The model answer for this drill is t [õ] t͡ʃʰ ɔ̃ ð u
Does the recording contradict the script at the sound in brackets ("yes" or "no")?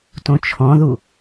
no